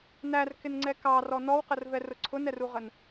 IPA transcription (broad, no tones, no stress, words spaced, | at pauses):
nærkɪnŋ͡ǀɛ kɑrɔ nɔwqərvɛrʊ ǀʰʊnɛruʁən